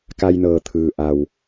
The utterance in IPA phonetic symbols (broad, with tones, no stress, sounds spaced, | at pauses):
k a˧ j n ɤː˩ t̪ʰ ɯː˩ ʔ a˩ w